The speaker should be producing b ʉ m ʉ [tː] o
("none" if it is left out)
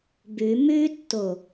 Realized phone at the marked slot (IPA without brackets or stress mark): tː